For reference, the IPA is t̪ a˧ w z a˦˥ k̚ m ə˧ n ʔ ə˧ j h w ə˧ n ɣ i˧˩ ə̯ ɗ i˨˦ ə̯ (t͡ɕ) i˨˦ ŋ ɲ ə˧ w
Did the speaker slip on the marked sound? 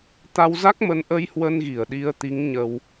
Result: yes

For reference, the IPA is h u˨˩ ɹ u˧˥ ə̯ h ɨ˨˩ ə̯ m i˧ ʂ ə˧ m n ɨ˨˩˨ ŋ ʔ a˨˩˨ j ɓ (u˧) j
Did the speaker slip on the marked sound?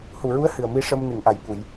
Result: yes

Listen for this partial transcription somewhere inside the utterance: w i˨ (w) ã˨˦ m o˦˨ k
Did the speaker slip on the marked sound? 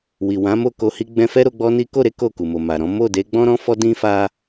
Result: no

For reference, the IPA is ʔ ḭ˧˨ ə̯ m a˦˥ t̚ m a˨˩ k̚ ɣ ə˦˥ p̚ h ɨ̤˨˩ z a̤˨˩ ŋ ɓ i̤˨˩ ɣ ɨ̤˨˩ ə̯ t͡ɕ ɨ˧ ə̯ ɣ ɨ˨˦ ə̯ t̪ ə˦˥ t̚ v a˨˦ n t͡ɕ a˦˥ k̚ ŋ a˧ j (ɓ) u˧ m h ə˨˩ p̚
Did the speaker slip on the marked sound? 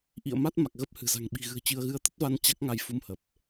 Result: yes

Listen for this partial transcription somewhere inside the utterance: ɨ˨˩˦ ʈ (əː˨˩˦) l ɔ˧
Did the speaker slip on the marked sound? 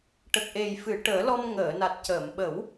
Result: no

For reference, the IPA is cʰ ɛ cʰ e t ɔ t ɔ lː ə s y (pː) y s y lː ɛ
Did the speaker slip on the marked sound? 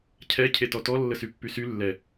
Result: no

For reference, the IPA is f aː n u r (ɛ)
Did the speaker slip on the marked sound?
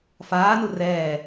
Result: yes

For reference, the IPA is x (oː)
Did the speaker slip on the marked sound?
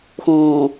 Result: yes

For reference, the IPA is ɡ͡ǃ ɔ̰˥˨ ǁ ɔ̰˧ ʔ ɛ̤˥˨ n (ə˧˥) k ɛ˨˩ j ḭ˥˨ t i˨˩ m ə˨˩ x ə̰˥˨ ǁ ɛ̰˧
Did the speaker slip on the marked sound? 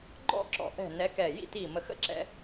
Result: yes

